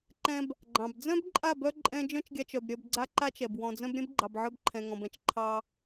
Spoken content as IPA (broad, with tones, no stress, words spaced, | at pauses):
ǃɛ̃˧b | ɡ͡ǃɑ̃˨b d͡zœ̃˦bǃʼa˦˨bœ˧ ǃʼɛ̃˦ d͡ʒœ̃˦t͡ʃɡʲa˧t͡ʃœ˨b ɾʲœ˧bɡ͡ǀa˦ǃa˦t͡ʃɛ˨b wɔ̃˨d͡zœ̃˧b ɾʲɛ̃˦bɡ͡ǃɑ˨bʕœ˧b ǃʰɛ̃˨ŋɔ̃˨bɛ̃˦˨t͡ʃ ǃʰɑ˧